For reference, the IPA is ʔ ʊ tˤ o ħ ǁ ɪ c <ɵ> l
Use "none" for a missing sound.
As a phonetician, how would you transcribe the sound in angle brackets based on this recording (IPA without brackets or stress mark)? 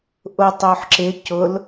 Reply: ʊ